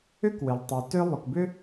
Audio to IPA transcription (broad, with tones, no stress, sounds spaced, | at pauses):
ʏ˥ k w ɪ˩ lˠ tˤ y˩ t ø˥ lˠ y˩ k b ʏ˥